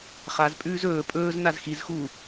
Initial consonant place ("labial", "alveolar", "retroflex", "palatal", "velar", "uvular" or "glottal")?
uvular